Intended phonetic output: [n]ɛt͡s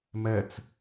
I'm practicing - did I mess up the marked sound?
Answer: yes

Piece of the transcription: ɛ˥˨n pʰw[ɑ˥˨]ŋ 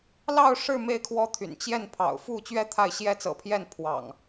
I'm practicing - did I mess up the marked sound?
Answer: yes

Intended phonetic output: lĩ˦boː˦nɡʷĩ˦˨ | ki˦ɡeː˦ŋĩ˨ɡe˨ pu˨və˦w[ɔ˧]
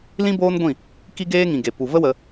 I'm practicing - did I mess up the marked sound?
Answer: yes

